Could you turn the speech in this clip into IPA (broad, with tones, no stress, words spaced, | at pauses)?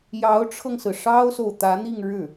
jɑ˧˥ʊ̯ʈ͡ʂʰɤ˧ŋsɹ̩˩ ʂɑ˥ʊ̯so˨ʊ̯t̪ä˧˥n̪i˥˧ŋ ɻɻ̩˥˩